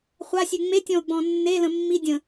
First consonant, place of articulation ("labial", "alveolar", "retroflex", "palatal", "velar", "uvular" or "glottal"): uvular